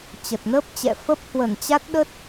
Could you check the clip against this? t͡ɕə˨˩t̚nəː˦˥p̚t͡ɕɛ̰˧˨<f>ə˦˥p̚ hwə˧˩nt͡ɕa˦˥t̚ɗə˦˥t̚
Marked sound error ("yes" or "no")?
no